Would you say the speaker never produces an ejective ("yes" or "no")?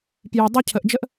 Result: yes